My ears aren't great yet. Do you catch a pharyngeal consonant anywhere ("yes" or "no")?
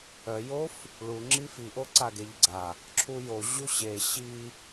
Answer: no